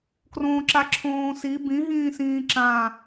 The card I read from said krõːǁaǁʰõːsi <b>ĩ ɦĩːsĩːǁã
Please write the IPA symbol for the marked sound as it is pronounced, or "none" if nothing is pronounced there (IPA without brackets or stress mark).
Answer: b